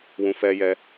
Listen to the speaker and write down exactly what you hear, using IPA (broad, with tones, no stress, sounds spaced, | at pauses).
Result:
w ũ˨ f ɛ˧ j ɛ˧